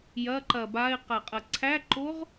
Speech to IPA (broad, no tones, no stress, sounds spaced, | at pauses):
j ɐ ǃ ɐ b a ɪ̯ q a qʼ ɐ ǀʰ æ ǃ o ʁ